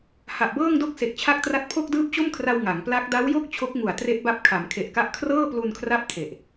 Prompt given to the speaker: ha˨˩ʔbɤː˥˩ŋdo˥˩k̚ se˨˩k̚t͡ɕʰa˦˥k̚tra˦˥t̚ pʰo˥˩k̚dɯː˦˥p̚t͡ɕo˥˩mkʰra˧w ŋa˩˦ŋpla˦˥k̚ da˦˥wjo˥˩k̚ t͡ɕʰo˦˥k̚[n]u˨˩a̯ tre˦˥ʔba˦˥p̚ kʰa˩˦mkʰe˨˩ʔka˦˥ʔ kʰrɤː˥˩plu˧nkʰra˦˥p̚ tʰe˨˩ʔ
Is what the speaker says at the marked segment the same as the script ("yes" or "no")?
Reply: no